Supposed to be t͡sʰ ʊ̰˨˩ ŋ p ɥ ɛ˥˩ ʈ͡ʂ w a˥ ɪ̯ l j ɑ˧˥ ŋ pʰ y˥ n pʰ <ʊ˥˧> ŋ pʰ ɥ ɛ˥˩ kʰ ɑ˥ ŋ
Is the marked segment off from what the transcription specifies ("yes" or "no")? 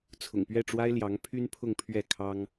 no